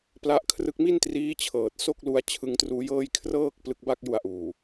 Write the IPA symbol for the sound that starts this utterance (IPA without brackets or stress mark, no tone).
p